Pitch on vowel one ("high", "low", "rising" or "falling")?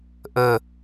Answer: low